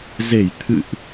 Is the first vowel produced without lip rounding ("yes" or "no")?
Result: yes